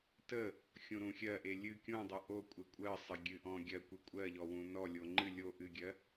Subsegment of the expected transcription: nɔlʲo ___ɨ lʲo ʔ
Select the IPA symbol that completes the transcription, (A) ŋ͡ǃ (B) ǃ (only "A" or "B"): A